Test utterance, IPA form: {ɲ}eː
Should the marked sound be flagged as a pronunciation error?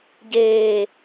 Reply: yes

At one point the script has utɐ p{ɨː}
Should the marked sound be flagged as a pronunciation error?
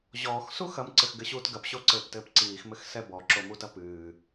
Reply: no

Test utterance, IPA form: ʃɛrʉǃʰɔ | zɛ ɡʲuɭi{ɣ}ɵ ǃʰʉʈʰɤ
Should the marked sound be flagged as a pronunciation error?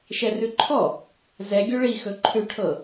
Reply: yes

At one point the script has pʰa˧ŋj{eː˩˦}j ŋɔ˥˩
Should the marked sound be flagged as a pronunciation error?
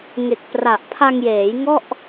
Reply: no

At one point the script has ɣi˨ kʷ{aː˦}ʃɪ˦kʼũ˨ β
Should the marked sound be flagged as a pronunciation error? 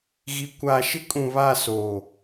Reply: yes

